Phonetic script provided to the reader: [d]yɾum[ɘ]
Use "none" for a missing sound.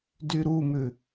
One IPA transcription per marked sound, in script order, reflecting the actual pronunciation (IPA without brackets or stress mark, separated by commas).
d, ʉ